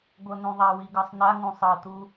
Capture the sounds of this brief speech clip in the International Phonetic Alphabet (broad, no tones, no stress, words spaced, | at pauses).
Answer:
ɡʷɤnũðˤawi ɡɤsˤnaŋũ sˤɤtu